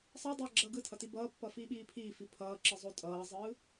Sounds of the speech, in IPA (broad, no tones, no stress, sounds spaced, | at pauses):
sˤ ʌ dˤ ʌː ɡ͡ǁ ʌː ɡ ɯ tʰ ʌ t i b ʌː pː ʌ f iː ɓ iː pʰ iː f i pʰ ʌː ǁ ɯ zˤ o tʼ ʌː zˤ ɯː